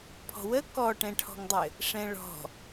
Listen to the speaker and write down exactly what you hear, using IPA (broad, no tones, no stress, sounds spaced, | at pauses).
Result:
pʰ ɔ̤ w ə k ɔ ʈ ɛ̃ ʈʰ ɔ̤ ŋ dˤ ɘ | ʂ ɛ̃ ɭ ɔ̤